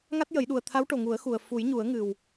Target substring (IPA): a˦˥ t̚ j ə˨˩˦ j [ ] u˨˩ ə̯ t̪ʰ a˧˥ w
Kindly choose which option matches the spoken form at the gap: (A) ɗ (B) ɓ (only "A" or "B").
A